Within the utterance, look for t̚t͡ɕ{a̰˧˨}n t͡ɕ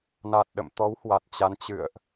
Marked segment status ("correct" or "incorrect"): incorrect